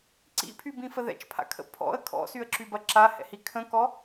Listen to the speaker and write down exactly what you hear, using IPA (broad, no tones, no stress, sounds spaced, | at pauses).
ǀ ḭ pʰ y b ĩ f ə ð ɛ̰ t͡ʃ pʰ a̰ kʰ ə̰ pʰ ɔ̰ ə̯ kʰ ɔ̰ s y ə̯ ǁ y b ɐ ǁ a h ɛ̰ h i kʰ ə̃ k ɔ